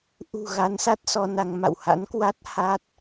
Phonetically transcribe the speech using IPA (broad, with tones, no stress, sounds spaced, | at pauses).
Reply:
ʔ ṳ˨˩ ɣ a˨˦ n s a˦˥ t̚ s ɔ˧ n a˧ ŋ m a̰˧˨ w h a̰˧˥ n k w a˦˥ t̚ h a˦˥ t̚